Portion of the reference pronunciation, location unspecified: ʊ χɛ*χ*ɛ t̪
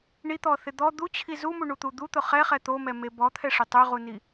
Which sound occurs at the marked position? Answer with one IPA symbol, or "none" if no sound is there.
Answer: χ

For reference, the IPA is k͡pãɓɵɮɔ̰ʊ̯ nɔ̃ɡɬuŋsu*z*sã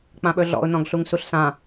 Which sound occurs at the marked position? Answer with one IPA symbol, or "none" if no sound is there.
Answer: ɬ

